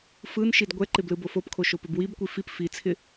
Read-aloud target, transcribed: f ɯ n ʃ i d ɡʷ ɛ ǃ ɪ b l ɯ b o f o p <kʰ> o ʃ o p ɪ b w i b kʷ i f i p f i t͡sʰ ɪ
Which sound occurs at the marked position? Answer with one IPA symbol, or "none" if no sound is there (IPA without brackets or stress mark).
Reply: kʰ